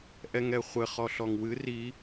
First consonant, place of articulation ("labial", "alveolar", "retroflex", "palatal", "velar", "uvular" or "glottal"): glottal